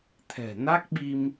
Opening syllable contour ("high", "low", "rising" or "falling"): low